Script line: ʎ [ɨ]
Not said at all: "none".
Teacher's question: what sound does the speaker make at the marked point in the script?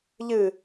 ɨ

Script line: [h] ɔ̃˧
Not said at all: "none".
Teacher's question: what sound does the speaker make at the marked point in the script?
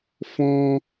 f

